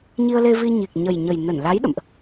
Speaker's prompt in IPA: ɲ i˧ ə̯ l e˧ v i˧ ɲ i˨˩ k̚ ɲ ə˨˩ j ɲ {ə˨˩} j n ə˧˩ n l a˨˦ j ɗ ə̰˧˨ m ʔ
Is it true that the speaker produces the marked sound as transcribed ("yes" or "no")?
yes